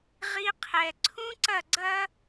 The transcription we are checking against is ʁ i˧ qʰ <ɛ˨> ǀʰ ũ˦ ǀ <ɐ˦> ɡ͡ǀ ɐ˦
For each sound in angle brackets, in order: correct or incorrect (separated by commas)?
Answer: correct, incorrect